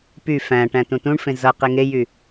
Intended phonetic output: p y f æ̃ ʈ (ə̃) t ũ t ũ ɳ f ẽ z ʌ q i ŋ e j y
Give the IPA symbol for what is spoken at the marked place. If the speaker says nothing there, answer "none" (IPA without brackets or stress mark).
æ̃